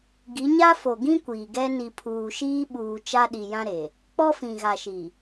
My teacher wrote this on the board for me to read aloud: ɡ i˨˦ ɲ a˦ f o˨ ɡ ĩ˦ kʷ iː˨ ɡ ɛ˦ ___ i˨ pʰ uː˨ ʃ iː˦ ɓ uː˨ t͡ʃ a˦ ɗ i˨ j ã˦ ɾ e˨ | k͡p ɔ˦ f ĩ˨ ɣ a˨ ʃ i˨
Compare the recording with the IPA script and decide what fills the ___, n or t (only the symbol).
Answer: n